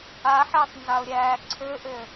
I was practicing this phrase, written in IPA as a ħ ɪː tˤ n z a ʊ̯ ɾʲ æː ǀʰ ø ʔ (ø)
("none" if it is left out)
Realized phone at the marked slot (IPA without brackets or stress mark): ø